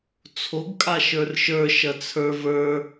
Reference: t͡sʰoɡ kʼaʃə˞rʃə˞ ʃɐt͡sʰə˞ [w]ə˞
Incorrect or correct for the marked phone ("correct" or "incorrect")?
incorrect